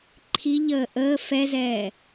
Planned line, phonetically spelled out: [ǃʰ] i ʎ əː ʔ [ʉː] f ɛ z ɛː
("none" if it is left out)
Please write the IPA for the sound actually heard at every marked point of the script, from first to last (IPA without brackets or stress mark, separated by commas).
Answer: ǃʰ, əː